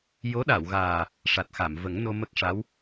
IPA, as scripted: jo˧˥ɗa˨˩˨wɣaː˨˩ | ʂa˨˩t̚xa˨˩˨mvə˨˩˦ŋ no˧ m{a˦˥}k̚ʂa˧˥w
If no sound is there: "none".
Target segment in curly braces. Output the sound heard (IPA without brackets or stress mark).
ə˦˥